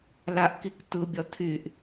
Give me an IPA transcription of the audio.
laʔkik t̪ɯbʲɒ t̪ʰyʔ

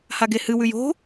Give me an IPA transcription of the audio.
haɡehɨ wʉjo̤

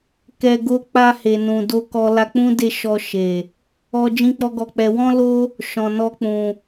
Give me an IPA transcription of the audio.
kɛ˧ɡo˦ k͡pa˧he˨nũ˨ do˧kɔ˧ la˧k͡pũ˦de˦˨ ʃɔ˧ʃe˨ | ɔ˧ d͡ʒĩ˦k͡pɔ˦ɡɔ˧k͡pɛ˧ wɔ̃˦lo˦ | ʃɔ̃˨nɔ˧k͡pũ˨

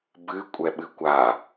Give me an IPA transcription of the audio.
bɨ kʷʼɛɓɨkʷa

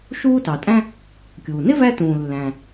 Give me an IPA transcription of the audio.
ʃuː˥tɑ˩tʼæ̃˥ | kʲuː˩nɪ˥ væ˥tũː˩ lːæ̃˩

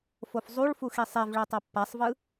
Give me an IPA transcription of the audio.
fofzˤuɭfu xisˤevɭɛ tˤapːasˤvɯ

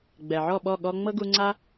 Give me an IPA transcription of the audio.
ɡ͡bɛ˨ʕɔ˦˨ɓɔ˦˨ ɠɔ˧ŋ͡mɤ˦ɡu˧ŋ͡ǀa˦

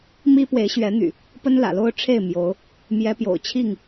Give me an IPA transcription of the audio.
mi˦ pwe˨˦ɪ̯ɕɥɛ˨˦n̪y̰˨˩ | pə˦nlä̰˨˩lo˦ʊ̯ ʈ͡ʂʰe˥˨ɪ̯ mjo˨˦ʊ̯ | mjɛ˨˦pjo̰˨˩ʊ̯t͡ɕʰi˥˨ŋ

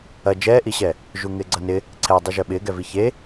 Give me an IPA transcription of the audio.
ɐ d͡ʒɛːʔiɕɛ | ʒuŋɪːɡ͡ǀɐnɪ | ǀʰɛ dˤiʒœɓɪː ɡɛviçe

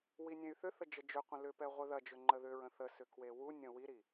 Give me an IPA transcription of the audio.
winʲẽy̯θʏθə d͡ʒəd͡ʒʏqʷə̃ lʏpɛ ʁʷeðɐd͡ʒʏ ŋ͡ǃəðʏɹə̃ θəsʏ kwewunʲə̃ wiɾi

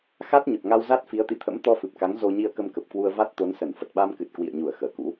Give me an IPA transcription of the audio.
xa˦˥t̚ɲə˨˩p̚ŋa˧wza˦˥t̚ fi˨˦ə̯t̪ḭ˧˨t̪ʰə̰˧˥m t̪ɔ˧fɨ˨˩p̚ka˨˦ŋ zo˧ ɲi˧ə̯kə˧mkə˨˩p̚kwu˧ə̯ va˦˥t̚t̪o˨˦nsə˧˩n fə˨˩t̚ɓa˧mkɨ˨˩t̚ kwḭ˧˨ə̯ɲu˧˩ə̯ xəː˧˩kṵ˧˥

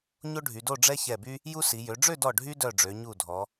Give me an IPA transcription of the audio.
ɲo˥ɖʱy˩˧do˥˧ ɖ͡ʐɛ˥çɛ˧˩by˥ | ju˥si˩˧ jø˩˧ɖ͡ʐø˥˧dɔ˧˩ ɖʱy˥dœ˧˩ ɖ͡ʐø˩˧ ɲu˧˩dʱɔ˩˧

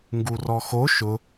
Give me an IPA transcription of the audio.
ŋɡurɔxo ʃʊ

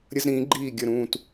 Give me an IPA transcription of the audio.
ɾʲə˦zɾĩː˨˦ɡ͡ǃiː˦˨ ɡʲə˦˨ɾũː˦˨t

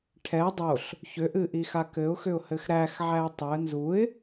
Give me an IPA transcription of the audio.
ʈʰɛ dˤoɬ | çʏʔɨʔixa kɘʊ̯xʏʊ̯hɘx ɾæxʕæɪ̯ tˤʏə̯ nzuɪ̯

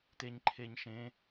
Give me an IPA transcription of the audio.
teɲǃʰeɲʃẽ

